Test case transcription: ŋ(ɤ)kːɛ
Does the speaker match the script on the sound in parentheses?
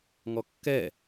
no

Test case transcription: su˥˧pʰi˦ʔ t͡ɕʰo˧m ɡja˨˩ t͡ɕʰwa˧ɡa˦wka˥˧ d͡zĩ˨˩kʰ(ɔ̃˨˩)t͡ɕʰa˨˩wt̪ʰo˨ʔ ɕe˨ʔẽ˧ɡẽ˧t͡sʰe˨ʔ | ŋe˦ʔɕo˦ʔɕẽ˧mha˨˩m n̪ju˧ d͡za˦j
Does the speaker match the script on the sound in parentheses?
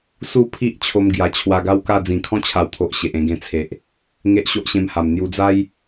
no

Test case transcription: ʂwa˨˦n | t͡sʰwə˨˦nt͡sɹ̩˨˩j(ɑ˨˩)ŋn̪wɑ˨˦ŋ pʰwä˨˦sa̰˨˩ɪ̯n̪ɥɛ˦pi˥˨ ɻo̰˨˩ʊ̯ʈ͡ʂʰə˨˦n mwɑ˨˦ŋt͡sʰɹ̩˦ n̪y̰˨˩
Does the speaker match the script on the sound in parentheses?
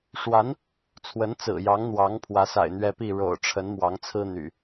no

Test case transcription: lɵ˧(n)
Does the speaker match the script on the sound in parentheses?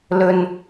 yes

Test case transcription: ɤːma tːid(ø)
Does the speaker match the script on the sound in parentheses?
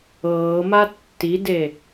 no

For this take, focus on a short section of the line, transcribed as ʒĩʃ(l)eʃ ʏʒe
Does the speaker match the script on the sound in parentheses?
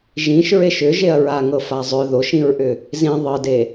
no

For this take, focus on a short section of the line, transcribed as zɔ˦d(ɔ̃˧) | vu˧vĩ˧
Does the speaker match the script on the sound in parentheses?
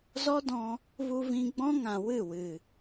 yes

